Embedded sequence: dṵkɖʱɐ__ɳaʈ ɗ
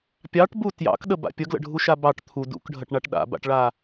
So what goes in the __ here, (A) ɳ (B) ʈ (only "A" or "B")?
B